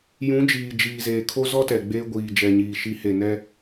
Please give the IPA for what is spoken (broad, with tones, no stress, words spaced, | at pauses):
jũ˨˦ d͡ʒiː˨d͡ʒiː˨zeː˨ kʰo˦zɔ˦tɛ˨ ɡ͡beː˦ɡʷiː˨d͡ʒɛ˨ɲiː˨ ʃi˨˦he˨nɛ˦